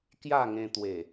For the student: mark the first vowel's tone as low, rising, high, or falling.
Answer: falling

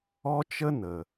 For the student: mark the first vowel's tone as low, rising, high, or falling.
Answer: high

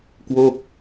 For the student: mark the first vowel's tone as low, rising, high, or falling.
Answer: falling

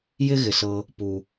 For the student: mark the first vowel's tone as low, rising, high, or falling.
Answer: high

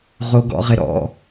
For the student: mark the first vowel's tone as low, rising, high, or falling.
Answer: low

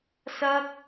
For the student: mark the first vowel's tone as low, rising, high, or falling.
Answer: high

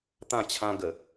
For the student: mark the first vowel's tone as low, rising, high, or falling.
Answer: falling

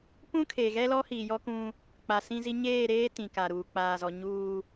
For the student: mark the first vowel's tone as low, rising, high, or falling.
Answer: high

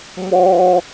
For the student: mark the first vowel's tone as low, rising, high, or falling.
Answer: high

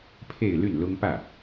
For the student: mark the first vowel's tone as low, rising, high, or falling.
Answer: falling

